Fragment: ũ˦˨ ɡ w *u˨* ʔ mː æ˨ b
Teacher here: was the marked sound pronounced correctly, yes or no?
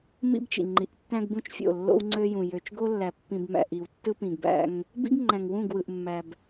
no